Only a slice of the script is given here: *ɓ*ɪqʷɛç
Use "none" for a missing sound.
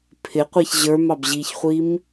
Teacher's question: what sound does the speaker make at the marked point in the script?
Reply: pʰ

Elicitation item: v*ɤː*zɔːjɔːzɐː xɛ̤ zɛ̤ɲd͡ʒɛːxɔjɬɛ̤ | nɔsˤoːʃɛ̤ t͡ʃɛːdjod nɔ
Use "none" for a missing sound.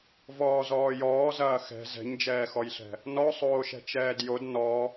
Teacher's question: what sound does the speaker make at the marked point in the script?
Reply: ɔː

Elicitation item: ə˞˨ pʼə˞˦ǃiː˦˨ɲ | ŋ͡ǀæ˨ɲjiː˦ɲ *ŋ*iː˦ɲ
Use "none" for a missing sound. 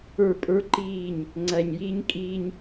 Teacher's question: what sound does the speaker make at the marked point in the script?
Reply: kʼ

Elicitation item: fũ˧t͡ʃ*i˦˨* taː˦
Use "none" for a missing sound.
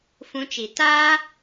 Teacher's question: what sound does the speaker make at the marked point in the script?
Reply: i˨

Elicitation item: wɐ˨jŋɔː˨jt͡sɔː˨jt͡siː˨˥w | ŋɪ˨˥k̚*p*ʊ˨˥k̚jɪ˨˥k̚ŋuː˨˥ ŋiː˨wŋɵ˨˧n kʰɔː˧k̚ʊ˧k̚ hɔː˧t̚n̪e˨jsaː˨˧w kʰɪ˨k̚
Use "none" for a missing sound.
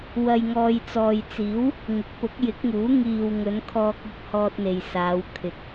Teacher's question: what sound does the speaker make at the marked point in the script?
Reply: p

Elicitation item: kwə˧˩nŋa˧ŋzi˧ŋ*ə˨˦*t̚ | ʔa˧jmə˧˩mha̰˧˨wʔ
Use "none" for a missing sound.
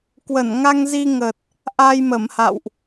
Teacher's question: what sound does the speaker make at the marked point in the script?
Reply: ə˨˩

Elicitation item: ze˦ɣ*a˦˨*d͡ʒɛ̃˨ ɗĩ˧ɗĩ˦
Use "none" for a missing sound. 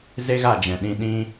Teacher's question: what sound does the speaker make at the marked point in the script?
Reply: a˦˨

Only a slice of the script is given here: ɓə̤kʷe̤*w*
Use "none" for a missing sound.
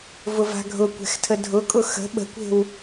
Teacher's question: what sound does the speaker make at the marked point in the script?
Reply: w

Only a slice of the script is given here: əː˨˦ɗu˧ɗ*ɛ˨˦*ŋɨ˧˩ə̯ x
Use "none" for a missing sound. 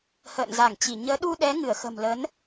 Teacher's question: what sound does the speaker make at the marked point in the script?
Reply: ɛ˨˦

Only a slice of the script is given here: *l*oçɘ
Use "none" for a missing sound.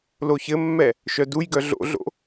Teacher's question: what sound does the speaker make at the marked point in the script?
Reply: l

